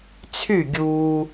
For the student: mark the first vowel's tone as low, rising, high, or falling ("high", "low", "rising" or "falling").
falling